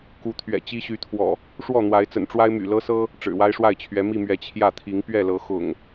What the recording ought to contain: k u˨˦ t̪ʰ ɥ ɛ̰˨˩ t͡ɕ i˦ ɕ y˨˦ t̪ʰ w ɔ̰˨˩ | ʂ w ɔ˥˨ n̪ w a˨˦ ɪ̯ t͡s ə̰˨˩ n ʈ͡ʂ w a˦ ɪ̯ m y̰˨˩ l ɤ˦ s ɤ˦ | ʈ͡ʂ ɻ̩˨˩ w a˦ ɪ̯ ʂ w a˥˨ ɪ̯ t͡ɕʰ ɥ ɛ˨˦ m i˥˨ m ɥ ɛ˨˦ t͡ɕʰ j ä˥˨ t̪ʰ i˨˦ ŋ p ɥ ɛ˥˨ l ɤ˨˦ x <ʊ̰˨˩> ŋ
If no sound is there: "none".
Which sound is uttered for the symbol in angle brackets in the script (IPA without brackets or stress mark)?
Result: ʊ̰˨˩